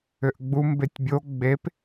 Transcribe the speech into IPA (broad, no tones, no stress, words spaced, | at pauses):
ʏʔɡ͡bu mbetʲbʲo ɡ͡bep